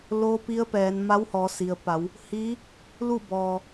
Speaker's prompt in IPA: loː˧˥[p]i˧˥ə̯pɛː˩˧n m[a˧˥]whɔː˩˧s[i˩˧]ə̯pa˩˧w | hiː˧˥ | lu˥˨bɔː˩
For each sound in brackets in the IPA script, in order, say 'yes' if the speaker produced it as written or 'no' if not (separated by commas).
yes, yes, no